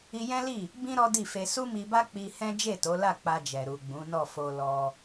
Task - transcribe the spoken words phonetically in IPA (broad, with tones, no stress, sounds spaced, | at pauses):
i˧ j ɛ̃˦ l i˦˨ | b ĩ˦ ɾ ɔ˦ d i˦˨ f e˧ s u˦ m i˧ b a˦ k͡p i˧ h ɛ̃˦ d͡ʒ e˦˨ t o˨˦ l a˦˨ k͡p a˧ d͡ʒ ɛ˨ ɾ u˨ ɡ͡b ũ˨˦ n ɔ˦˨ f o˧ l ɔ˧